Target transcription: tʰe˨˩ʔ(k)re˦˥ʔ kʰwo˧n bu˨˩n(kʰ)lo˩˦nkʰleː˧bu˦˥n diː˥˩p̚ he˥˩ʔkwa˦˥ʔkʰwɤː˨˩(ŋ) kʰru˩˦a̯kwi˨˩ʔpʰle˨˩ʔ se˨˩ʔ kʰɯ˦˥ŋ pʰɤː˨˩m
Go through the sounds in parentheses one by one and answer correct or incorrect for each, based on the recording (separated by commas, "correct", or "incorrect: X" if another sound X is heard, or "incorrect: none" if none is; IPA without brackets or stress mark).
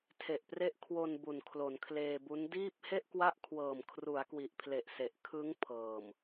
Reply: incorrect: p, correct, incorrect: m